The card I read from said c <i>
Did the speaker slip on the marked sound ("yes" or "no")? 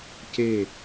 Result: yes